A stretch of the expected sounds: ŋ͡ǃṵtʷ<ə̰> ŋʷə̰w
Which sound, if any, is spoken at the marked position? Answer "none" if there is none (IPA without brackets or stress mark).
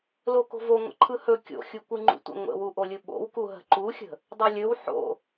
ə̰